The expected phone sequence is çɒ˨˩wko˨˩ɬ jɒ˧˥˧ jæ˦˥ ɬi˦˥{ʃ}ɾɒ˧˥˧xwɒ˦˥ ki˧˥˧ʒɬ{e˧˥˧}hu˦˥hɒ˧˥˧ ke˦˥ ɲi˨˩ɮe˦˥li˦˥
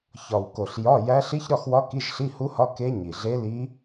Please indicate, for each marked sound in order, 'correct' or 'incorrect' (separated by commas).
incorrect, incorrect